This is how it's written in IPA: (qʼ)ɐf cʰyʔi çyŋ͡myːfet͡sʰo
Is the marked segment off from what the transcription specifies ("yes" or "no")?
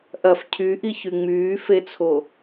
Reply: yes